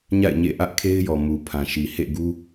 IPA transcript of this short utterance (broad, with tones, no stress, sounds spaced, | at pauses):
ɲ a̰˦˨ ɪ̯ ɲ ḛ˦˨ ʔ ä˦ ʔ kʰ e˦ ɪ̯ j ɔ˨ m u˨ pʰ ã˨ ʃ i˨ h ḛ˦˨ ɡ u˦